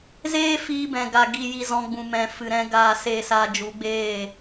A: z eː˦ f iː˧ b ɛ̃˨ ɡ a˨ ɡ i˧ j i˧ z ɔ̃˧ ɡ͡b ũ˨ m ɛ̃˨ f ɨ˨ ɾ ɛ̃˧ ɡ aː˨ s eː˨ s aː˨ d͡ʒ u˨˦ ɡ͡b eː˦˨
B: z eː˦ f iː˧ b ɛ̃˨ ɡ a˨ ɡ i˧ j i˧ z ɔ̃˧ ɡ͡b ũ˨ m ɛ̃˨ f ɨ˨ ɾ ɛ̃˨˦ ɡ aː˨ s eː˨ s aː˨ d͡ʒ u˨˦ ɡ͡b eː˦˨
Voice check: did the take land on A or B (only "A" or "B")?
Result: A